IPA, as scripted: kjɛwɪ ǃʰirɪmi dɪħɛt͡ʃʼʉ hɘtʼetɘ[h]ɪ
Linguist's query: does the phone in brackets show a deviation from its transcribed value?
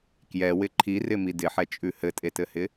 no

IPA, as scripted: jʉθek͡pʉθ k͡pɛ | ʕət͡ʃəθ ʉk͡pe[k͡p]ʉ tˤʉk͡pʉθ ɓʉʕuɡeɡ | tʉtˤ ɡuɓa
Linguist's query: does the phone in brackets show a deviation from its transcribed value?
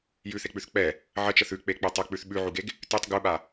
no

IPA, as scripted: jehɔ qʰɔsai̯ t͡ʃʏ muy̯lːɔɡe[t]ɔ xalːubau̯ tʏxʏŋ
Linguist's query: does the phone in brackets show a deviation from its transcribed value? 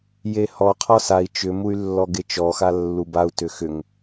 yes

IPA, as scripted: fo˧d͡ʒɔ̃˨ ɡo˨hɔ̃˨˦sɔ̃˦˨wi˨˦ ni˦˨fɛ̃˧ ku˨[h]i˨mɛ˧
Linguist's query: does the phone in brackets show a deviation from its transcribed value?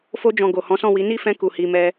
no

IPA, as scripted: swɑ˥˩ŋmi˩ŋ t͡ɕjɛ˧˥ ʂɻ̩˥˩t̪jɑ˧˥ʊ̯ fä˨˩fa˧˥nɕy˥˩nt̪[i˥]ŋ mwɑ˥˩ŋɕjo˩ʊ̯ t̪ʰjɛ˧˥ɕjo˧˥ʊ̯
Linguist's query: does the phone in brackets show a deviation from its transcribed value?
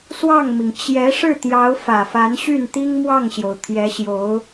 no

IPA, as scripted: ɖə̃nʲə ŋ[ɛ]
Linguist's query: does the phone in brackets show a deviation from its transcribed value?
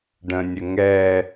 no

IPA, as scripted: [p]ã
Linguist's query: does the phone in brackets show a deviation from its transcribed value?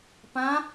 no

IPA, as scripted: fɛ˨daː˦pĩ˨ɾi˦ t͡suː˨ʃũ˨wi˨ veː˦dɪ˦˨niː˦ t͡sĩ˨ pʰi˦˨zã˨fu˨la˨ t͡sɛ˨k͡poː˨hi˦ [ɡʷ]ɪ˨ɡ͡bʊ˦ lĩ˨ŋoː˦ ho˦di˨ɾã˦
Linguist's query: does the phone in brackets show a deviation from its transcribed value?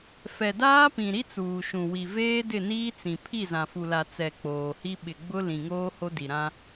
yes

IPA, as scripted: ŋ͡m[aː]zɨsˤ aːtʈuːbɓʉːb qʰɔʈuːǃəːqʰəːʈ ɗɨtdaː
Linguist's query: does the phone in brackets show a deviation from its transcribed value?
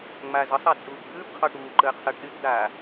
no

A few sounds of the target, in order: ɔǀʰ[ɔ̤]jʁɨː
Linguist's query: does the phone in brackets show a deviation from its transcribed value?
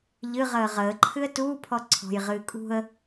no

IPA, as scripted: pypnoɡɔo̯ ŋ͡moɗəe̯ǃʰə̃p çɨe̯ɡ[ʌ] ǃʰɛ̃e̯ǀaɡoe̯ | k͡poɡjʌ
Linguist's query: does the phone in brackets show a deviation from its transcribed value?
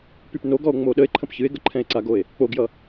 yes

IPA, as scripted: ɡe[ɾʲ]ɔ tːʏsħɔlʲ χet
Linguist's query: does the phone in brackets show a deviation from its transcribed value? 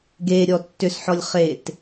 no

